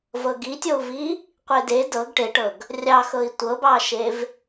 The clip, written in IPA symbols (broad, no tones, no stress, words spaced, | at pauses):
vɤɡitʲou̯vi | qʷede dɤɡ ʈeʈɤɡ | rʲɑxɤi̯ tʷɤbɑʃev